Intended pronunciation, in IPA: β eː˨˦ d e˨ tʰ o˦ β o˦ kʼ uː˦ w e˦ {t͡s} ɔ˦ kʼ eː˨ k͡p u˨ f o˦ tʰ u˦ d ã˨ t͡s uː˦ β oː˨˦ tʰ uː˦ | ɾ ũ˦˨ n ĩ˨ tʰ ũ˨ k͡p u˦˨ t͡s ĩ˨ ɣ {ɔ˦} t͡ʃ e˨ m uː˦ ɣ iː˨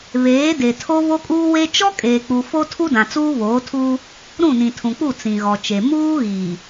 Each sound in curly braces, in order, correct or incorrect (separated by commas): incorrect, incorrect